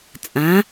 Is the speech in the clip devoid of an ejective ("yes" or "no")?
no